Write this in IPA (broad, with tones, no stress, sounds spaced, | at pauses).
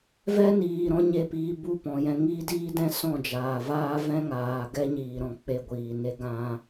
v ɛ˦ n iː˨ ɾ ɔ̃˦ ɲ e˦˨ p iː˧ b u˦˨ p ɔ̃˨ j ɛ̃˧ ŋ iː˦ d iː˦ d ɛ̃˦ s ɔ̃˦˨ d͡ʒ aː˨ v aː˦ v ɛ̃˦ ŋ aː˨ ɡ ɛ˦ ɲ iː˨ ɾ ɔ̃˨ k͡p e˦˨ ɡʷ iː˨ n e˦ ɡ ã˦